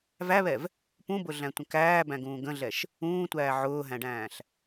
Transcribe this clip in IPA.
væβɛv | pũbʊɮæ̃tʷə̃ kæːbæ̃ɡũː ɡə̃ɮɛʃ | ũːtʷæː ʕʊːɦæ̃ɖæ̃ːɬ

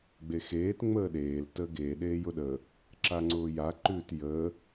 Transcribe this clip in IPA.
ɡ͡bexeːt ŋ͡məːɗeːl təːɡeː ɗeːjʊɗə | ǁaŋ͡ǀʊːja ǃʉːtjəː

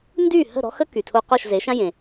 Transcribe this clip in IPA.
ndyː˥˩hə̤˥˩ ɾɔ̤˥xə˥ ky˩tʰo˧ qɔ˥˩ʃze˩˥ʃã˥ jẽ˩

